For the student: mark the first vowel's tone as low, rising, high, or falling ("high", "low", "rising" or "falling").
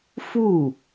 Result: falling